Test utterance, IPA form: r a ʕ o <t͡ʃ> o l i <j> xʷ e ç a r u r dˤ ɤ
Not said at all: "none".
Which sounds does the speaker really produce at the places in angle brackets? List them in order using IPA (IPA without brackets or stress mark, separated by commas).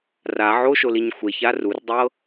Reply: ʃ, ɲ